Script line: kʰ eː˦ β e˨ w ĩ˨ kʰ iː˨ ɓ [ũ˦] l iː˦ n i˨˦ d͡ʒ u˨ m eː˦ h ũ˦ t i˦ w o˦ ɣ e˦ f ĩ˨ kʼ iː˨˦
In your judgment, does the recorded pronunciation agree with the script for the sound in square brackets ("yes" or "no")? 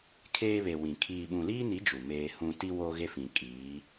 no